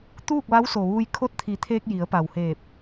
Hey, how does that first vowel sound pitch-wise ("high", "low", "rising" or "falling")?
falling